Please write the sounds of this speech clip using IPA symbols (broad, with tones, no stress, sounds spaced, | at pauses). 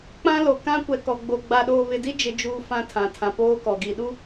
k͡p ã˦ l o˨ k ã˦ kʷ ɛ˨ k ɔ˨ ɡ͡b o˨ ɡ͡b a˨ ɗ oː˨ β ɪ˨ d i˦ d͡ʒ ɪ˦ d͡ʒ uː˦ f ã˦ tʰ ã˨ tʰ ã˨ p oː˦ k ɔ˨ ɡ i˨ ɗ u˦